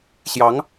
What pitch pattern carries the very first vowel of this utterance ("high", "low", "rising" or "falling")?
rising